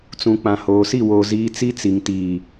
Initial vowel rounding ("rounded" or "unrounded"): rounded